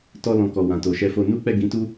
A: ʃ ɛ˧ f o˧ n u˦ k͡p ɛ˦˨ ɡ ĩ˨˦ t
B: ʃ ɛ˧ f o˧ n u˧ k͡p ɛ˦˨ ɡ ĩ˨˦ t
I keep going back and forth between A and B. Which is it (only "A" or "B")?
A